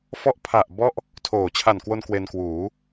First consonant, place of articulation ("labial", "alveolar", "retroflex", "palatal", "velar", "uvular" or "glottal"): labial